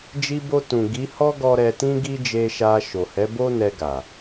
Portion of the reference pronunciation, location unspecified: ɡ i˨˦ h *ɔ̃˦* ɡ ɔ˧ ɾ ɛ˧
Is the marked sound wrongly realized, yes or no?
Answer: yes